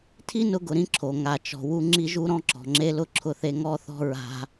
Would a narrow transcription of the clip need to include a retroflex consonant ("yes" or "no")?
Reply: no